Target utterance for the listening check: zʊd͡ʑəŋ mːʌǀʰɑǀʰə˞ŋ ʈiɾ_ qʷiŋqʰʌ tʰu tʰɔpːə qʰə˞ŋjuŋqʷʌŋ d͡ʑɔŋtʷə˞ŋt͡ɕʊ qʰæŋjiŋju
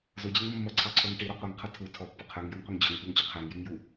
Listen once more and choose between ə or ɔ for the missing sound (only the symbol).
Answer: ɔ